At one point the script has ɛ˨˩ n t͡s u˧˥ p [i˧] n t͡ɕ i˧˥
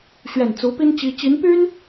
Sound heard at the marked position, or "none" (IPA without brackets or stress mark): i˥